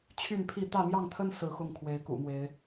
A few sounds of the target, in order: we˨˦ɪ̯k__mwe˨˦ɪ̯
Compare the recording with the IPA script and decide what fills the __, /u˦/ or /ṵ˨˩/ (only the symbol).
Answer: ṵ˨˩